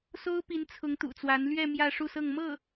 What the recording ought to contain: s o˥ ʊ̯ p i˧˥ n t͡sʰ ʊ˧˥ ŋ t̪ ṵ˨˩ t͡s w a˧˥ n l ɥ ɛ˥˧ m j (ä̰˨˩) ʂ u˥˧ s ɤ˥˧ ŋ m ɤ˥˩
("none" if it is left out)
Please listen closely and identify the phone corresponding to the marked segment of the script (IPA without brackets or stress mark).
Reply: ä˥˧